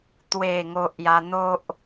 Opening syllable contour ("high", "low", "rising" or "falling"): low